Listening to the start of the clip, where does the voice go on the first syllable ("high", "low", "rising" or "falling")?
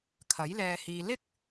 rising